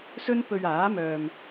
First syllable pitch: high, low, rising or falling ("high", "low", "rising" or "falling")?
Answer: high